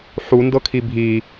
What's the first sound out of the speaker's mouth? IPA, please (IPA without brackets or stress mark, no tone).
ħ